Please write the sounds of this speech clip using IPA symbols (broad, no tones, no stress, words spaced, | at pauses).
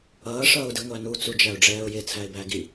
ʌːʂʌːʊ̯di ŋʷænu t͡sud͡ʒæʊ̯ɖ͡ʐɛːʊ̯jɪ t͡sʰæɪ̯bæɡi